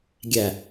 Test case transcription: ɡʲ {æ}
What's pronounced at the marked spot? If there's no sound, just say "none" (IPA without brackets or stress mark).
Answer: æ